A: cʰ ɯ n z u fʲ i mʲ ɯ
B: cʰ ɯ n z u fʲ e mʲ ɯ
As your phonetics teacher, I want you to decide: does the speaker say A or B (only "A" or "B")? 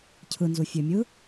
B